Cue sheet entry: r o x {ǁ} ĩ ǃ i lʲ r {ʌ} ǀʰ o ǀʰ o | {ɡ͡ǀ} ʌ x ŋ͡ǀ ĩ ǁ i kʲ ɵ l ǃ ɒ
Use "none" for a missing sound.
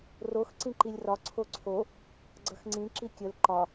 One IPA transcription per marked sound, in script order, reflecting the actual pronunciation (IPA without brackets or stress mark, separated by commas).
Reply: ǀ, ɒ, ɡ͡ǀ